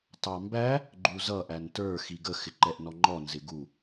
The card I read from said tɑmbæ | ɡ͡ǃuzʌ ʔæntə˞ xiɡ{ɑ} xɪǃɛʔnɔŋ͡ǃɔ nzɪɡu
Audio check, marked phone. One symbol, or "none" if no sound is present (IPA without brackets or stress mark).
ə